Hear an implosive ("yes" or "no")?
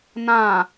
no